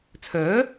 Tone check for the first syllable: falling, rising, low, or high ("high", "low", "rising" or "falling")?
rising